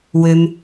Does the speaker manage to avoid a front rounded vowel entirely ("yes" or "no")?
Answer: no